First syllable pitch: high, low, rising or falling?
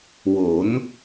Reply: rising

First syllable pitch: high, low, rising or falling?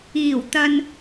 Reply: low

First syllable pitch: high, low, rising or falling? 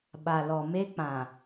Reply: low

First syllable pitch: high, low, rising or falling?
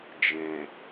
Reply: low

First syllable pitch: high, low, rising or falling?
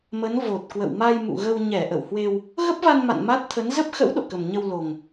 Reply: rising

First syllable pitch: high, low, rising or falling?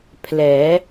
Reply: rising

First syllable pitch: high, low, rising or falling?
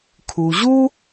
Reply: low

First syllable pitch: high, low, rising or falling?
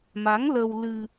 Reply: rising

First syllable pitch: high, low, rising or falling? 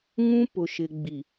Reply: high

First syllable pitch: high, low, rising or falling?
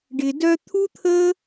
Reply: low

